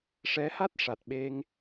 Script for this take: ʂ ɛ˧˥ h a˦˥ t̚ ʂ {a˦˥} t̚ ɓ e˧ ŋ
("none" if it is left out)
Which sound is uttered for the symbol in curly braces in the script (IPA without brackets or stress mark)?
a˨˩